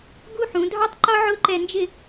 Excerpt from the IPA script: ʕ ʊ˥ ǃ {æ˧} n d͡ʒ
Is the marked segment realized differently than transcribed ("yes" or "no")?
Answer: yes